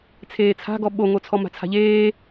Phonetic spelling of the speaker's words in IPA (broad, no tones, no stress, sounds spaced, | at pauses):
t͡sʰ eː t͡sʰ a̤ ɡ ɔ ɓ o ŋ o t͡sʰ ɔ m a̤ t͡sʰ a̤ ʎ eː